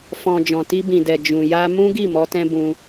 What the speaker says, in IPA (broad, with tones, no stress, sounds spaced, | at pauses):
f ɔ̃˨ d͡ʒ ɔ̃˨ t i˧ b ĩ˨ d ɛ˨ d͡ʒ ũ˨ j a˧ m ũ˦ ɡ i˦˨ m ɔ˨˦ t ɛ̃˦ b ũ˧